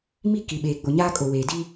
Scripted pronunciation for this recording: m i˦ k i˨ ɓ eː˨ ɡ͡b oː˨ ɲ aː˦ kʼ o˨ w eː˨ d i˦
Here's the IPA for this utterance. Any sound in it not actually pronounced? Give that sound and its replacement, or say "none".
oː˨ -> o˨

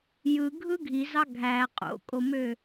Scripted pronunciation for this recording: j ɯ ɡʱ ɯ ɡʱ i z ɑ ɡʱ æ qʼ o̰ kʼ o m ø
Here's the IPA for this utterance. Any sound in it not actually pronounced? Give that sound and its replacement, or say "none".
none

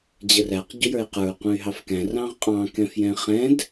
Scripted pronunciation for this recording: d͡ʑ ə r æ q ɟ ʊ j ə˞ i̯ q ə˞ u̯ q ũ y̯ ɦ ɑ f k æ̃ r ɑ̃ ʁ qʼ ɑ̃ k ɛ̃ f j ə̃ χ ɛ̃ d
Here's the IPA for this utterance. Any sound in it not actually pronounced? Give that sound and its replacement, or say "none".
ə̃ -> ɛ̃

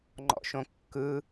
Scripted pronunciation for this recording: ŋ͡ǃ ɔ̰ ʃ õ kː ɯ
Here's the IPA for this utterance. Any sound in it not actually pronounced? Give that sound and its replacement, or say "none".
none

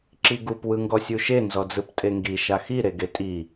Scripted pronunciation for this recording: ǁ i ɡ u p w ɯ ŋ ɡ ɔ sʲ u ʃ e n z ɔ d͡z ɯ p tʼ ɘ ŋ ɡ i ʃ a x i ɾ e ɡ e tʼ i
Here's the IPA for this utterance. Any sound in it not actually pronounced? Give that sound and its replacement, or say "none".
ɘ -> e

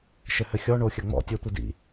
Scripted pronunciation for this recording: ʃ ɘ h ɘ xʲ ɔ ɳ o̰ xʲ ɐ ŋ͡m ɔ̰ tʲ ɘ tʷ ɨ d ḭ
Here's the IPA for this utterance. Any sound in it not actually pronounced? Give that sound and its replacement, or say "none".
o̰ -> o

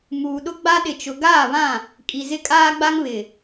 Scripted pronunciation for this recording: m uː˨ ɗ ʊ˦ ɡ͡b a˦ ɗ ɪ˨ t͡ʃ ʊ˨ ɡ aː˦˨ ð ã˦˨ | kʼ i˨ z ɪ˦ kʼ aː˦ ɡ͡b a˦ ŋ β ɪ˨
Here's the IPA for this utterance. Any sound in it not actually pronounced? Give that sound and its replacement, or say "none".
ð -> β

